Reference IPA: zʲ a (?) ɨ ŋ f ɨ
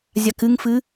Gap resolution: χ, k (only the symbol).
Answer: k